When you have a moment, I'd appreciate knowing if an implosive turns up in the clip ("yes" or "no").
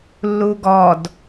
no